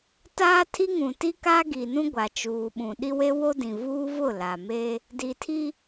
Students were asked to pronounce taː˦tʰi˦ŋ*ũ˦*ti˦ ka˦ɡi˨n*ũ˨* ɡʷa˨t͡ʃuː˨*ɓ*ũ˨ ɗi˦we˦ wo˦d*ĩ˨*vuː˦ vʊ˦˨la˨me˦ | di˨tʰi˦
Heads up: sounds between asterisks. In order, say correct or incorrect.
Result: incorrect: ũ˨, incorrect: ũ˦, correct, correct

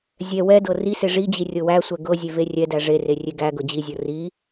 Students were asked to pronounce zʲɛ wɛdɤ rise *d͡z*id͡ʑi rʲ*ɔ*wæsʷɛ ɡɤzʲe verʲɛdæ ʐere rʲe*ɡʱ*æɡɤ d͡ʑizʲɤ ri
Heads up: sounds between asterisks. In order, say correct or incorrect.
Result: incorrect: ʐ, incorrect: ɤ, incorrect: ɡ

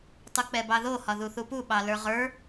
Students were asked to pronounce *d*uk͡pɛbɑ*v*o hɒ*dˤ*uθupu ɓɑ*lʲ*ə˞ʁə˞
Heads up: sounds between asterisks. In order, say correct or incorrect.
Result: incorrect: tˤ, incorrect: ð, incorrect: ð, incorrect: l

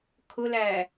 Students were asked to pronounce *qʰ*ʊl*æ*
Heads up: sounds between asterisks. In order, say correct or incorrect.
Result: incorrect: kʰ, correct

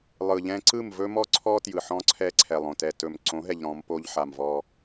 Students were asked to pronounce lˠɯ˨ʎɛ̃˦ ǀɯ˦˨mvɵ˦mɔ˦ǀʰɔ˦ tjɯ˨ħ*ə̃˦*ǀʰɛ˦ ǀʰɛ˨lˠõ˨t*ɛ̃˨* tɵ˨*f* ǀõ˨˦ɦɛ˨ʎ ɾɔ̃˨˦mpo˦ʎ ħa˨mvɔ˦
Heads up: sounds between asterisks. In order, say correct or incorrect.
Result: incorrect: ɔ̃˦, incorrect: ɛ˨, incorrect: m

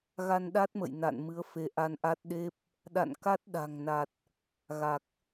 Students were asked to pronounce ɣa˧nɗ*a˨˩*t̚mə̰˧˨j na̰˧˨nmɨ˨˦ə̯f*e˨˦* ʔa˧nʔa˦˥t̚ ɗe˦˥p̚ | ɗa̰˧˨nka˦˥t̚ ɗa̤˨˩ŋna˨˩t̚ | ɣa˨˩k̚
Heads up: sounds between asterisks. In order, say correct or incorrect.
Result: incorrect: a˦˥, correct

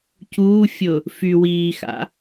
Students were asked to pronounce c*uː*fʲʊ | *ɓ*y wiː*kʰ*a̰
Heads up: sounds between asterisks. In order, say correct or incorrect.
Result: correct, incorrect: f, incorrect: x

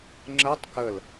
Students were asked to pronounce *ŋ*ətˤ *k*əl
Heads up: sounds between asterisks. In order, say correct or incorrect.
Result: incorrect: ŋ͡ǁ, correct

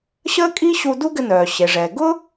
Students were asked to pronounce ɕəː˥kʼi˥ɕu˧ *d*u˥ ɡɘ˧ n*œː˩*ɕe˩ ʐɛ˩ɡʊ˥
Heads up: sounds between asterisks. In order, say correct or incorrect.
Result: correct, correct

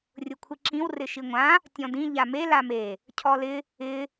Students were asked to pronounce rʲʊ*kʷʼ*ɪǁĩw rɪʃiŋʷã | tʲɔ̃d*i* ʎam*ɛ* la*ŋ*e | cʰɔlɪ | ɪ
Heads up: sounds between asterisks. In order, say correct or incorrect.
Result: incorrect: kʷʰ, incorrect: ĩ, incorrect: e, incorrect: m

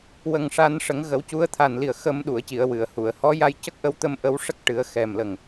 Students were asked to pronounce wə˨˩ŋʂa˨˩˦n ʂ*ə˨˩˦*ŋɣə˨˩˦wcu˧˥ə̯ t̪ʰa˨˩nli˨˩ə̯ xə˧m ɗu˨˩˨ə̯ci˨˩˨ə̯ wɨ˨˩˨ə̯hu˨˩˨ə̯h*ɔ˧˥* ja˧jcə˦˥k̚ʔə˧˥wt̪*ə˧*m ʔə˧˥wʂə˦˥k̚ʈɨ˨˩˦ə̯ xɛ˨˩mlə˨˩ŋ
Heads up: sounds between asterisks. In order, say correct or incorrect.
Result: correct, correct, correct

